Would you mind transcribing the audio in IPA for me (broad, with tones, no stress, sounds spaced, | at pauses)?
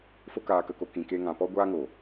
f o˦ k aː˧ k ə˧ k o˧ k ĩ˨ k e˧ ŋ ã˨ p ɔ˦ ɡʷ aː˦ ŋ o˨